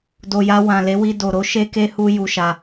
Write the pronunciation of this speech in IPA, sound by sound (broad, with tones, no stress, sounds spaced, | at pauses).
d o˨ j a˧ w ã˨ l e˨˦ w i˧ d o˨ ɾ o˨˦ ʃ e˧ k e˧ h u˧ j u˧ ʃ a˧